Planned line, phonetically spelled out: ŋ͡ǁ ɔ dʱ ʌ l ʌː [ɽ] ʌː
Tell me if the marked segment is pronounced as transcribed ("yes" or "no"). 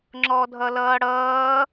yes